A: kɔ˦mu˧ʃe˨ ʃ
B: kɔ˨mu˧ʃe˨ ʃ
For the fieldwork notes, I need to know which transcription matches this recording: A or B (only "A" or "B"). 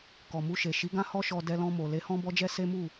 B